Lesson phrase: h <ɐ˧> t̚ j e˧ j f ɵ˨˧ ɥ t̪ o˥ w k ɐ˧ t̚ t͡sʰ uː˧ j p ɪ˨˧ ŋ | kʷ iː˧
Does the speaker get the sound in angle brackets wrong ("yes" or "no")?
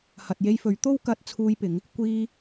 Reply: yes